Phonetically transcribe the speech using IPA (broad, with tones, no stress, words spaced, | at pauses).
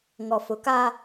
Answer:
ŋɔ˨fʊ˨ka˦